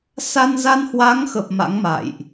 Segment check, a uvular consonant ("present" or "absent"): absent